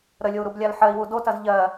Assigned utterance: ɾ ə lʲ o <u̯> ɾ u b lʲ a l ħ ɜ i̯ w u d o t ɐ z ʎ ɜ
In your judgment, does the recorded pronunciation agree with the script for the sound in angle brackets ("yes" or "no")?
yes